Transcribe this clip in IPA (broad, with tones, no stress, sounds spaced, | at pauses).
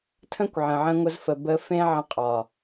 tʰ ə̃˦ kʷ ʕ ə̃˨ ʕ ə̃˧ ŋʷ ə˧ z f ə˨ b ə˧ f ẽ˧ ʕ ə̃˧ qʼ ɒ˨